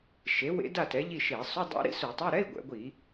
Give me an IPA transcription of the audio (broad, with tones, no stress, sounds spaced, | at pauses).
ʃ e˩˥ w ḛ˦˥ d a˥˨ t ɛ˩˥ ʎ i˥˨ ʃ e˧˩˧ sˤ u˧˥˧ dˤ a̰˦˥ ɾ ḭ˦˥ s u˧˩˧ tˤ e˧˥˧ ɾ ɛ˧˥˧ i̯ ɡʷ ɛ̰˩˧ ɡʷ i˧˩˧